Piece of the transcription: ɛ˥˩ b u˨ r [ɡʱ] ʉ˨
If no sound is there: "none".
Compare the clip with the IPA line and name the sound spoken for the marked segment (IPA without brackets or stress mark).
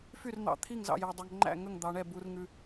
ŋ